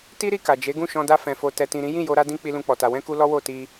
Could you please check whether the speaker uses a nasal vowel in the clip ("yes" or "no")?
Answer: yes